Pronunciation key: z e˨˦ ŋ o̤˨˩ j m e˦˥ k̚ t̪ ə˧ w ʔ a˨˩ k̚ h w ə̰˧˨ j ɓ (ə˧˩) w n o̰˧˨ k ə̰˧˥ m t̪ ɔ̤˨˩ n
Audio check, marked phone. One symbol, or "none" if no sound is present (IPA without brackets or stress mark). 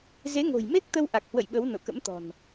ə˨˦